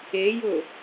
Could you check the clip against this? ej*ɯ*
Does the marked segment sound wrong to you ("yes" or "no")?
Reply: yes